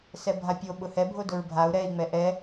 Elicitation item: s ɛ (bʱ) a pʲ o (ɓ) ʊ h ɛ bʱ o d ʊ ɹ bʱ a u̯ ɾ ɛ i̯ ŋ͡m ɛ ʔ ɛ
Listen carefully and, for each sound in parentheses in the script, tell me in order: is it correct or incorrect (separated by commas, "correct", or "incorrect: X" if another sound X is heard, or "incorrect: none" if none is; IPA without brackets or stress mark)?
correct, correct